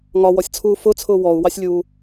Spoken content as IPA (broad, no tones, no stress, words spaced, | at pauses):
ŋɒwɔsʲt͡sʰuː fʊt͡sʰʊː wɔu̯wɑsʲlʲuː